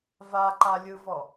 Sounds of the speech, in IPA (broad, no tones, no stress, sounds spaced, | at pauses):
v a ǃ a lʲ ɯ v ɔ